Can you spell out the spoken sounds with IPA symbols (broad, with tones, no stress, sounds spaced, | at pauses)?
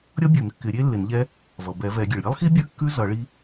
ɾʲ ʌ˦˥ bʲ ʉ˨˩˦ n kː ɪ˨˩˦ ɾʲ e˦˥ lː ɪ˨˩˦ n ʎ ɛ˦˥ | v ʌ˩ b ɛ˨˩˦ v ɛ˨˩˦ ɡʲ e˩ ɭ ɾʲ e˦˥ lˠ x i˦˥ bʲ ʉ˦˥ kː ʉ˦˥ z ʌ˨˩˦ ɭ i˦˥